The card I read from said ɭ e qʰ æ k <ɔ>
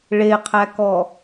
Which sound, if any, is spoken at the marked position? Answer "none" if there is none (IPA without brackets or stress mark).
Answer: ɔ